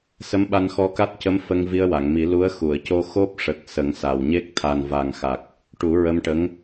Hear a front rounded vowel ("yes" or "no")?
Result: no